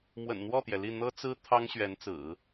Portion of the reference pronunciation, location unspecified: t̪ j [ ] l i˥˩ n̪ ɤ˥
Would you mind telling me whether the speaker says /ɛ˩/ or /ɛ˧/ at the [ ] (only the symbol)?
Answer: ɛ˩